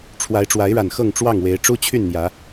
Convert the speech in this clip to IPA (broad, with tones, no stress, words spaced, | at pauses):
ʈ͡ʂʰwa˨˦ɪ̯ʈ͡ʂwa˨˦ɪ̯ɻa˨˩n xɤ˥˨ŋʈ͡ʂwɑ˥˨ŋ we˨˦ɪ̯ʈ͡ʂu˦ t͡ɕʰy˥˨nn̪jä˨˦